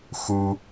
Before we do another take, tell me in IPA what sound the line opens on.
x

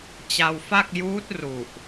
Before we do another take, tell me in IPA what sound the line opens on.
t͡ɕ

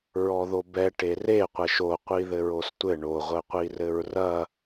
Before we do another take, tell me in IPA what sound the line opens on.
ɹ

